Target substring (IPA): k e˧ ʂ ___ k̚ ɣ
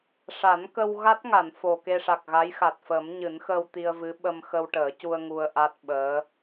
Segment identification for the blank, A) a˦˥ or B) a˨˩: B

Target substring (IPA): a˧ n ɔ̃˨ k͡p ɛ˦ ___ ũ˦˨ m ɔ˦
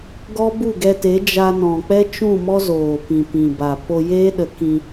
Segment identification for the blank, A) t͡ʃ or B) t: A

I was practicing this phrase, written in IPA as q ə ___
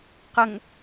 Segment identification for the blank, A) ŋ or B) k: A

